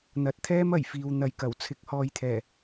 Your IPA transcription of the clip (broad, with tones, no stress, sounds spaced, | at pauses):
n̪ ɐ˨ t̚ t̪ʰ ɛː˥ m ɐ˨˩ j f iː˨ w n̪ ɐ˨ j k ɐ˨˩ w t͡sʰ ɪ˨˥ k̚ h ɔː˨˧ j t̪ʰ ɛː˨˩